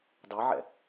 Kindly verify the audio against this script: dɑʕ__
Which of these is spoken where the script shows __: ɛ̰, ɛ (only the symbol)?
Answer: ɛ̰